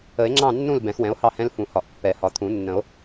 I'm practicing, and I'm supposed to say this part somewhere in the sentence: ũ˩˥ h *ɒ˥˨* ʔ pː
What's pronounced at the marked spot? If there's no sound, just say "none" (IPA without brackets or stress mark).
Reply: ɒ˨˩˦